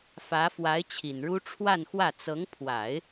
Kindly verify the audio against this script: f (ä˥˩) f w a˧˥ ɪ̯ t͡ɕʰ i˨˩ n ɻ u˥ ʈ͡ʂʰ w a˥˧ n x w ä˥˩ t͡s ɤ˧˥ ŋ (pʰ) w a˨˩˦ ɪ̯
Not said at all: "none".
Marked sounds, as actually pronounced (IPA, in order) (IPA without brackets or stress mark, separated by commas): ä˧˥, pʰ